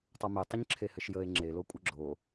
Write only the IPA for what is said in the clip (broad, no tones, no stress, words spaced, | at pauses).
tˤɐmetˤəɲǁʰe hɘʃjəe̯ ŋ͡ǁelo kʷʼəɡ͡ǁo